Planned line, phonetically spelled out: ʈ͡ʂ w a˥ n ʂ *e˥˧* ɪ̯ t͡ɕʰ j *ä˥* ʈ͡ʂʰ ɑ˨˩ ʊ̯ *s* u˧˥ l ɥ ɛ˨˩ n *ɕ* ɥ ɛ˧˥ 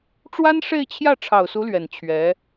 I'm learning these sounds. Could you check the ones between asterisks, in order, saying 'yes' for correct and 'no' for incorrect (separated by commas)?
yes, no, yes, no